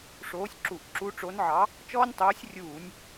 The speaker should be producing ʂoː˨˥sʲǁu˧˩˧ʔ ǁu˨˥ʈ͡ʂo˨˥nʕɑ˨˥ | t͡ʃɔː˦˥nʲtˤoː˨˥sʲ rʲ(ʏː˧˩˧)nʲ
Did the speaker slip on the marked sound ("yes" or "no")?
yes